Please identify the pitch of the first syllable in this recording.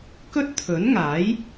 high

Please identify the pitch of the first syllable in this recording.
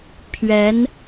rising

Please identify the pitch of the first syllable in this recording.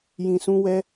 low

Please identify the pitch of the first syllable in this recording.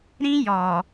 high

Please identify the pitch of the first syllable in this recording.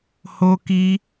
high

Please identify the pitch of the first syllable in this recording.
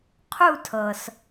falling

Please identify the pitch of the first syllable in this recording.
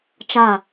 falling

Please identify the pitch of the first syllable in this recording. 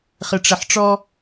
low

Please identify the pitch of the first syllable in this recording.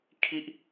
high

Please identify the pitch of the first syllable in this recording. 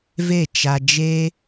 falling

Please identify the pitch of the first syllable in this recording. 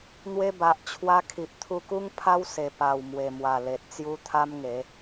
high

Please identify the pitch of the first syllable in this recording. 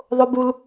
high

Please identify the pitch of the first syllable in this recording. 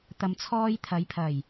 low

